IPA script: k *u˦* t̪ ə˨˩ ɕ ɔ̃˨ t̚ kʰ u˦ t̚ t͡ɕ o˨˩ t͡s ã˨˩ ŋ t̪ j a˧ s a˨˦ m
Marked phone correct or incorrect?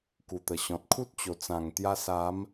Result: incorrect